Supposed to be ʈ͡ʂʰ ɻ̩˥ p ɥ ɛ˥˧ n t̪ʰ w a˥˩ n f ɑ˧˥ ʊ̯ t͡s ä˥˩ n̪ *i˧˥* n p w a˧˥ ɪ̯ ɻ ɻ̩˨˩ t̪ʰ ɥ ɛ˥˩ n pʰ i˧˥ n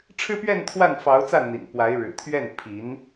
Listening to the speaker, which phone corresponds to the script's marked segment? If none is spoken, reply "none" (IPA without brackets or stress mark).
ḭ˨˩